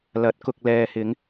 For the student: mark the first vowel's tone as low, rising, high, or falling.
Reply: rising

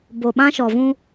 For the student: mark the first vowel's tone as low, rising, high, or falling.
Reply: low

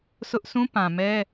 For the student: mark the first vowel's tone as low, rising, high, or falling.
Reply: high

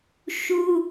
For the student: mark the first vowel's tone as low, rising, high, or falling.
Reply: high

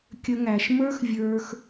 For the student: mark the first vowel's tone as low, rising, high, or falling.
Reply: high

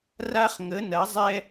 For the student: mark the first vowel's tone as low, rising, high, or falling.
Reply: high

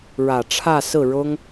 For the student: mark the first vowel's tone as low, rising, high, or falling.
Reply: low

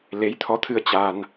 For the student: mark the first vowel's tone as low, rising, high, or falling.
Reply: rising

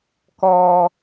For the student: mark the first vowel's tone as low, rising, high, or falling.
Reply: low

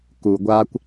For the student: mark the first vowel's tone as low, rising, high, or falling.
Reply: low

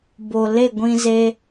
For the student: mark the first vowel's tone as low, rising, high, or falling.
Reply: low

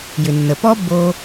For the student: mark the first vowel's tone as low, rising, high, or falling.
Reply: low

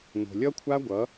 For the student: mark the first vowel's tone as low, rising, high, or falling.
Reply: low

